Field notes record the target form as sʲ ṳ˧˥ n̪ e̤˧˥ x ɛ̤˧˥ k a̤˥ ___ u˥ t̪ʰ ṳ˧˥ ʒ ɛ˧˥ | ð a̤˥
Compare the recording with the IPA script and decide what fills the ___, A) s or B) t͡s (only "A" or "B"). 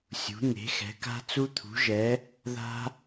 B